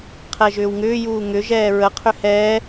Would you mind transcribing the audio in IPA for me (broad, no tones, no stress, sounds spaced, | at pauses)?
qʰ ɛ ʒ ʏː w ŋ ʏː j uː ŋ ʏ ʒ ɛː ɹ ə qʰ ʏ h ɛː